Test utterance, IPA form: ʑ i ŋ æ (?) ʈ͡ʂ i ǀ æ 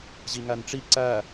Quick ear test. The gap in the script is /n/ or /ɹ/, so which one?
n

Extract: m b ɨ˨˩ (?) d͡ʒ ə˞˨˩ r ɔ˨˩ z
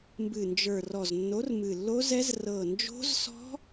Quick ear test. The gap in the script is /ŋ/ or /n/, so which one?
n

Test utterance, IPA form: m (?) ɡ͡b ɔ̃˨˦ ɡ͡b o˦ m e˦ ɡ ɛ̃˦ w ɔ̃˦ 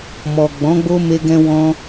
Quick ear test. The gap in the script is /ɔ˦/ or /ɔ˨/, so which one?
ɔ˨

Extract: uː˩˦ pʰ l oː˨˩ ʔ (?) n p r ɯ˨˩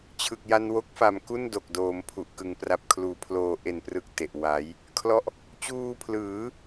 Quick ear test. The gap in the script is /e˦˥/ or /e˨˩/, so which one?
e˨˩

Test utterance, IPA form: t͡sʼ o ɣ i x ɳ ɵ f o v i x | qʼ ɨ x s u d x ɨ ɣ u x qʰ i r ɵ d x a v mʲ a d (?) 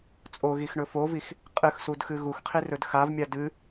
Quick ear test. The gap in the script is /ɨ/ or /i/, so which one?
ɨ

